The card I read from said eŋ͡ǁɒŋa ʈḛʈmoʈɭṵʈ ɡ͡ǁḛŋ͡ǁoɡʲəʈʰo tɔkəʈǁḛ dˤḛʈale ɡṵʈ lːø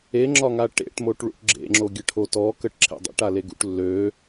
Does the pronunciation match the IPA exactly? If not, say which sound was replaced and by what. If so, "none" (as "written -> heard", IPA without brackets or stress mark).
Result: none